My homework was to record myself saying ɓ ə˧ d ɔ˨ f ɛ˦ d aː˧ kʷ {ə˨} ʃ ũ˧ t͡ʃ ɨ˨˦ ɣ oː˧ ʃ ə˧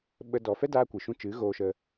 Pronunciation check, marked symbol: incorrect: ɨ˨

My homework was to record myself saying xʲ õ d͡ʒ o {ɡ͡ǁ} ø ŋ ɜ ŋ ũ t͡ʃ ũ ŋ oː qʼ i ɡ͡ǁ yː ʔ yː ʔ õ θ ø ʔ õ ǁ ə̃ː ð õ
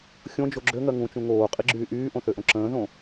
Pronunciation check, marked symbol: correct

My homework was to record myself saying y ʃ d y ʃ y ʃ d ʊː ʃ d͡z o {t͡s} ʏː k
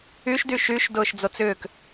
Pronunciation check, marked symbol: correct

